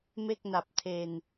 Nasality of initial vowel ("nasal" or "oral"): oral